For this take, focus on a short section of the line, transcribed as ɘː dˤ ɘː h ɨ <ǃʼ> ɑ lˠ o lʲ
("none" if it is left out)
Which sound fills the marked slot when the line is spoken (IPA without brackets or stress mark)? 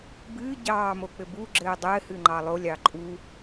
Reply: ŋ͡ǃ